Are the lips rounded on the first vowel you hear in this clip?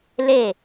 no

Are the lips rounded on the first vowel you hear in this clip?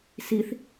no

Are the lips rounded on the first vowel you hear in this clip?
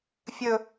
yes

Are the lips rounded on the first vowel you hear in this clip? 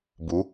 yes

